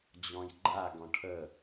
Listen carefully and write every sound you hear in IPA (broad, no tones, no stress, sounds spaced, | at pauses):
d͡ʑ ɔ̃ j ɡ͡ǃ a ɡ ɔ̃ ʈʰ ə